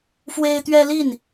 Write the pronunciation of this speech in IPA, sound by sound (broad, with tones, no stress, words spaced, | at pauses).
fwe˦ɪ̯t̪ɥɛ˦li˥˨n